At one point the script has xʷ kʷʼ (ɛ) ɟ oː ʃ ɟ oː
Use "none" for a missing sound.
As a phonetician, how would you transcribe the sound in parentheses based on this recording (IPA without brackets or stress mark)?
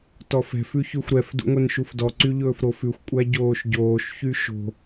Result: æ